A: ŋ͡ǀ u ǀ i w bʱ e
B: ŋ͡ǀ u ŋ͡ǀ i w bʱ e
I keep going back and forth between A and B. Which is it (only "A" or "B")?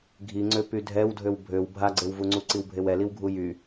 A